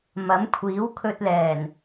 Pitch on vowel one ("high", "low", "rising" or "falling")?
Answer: rising